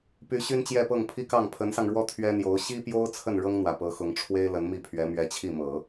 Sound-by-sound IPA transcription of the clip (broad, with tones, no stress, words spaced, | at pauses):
py˧˥ ɕy˥nt͡ɕjɛ˥˧pɤ˥˩ŋ pʰi˥kɑ˥˩ŋ pʰə˧˥nsɑ˧ŋɻwɔ˥ t̪ʰɥɛ˥n̪jo˧˥ʊ̯ ɕi˥pjo˥ʊ̯ t͡sʰə˥˩n ɻɤ˥ŋn̪wä˨˩ pɤ˧˥xʊ˧˥ŋ ʈ͡ʂʰwe˥ɪ̯ lə˧˥nmi˥˩pʰɥɛ˧˥ mɥɛ˧˥t͡ɕʰi˥˩mɤ˨˩˦